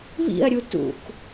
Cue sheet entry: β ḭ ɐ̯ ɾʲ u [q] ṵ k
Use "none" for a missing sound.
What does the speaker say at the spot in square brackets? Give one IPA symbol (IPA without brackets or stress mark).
t